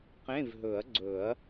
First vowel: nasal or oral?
nasal